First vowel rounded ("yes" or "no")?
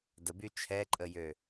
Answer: no